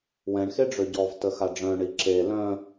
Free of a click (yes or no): no